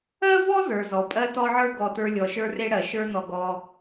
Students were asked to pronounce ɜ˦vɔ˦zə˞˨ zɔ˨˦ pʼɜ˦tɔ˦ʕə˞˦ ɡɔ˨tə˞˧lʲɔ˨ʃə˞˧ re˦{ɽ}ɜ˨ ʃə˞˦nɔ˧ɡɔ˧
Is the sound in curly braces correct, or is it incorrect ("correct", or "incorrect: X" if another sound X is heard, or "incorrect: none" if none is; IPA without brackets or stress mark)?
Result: correct